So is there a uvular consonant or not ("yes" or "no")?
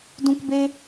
no